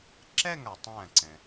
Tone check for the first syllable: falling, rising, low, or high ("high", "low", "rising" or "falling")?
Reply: falling